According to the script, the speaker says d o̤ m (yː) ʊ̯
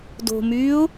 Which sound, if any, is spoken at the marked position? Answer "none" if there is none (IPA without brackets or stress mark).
yː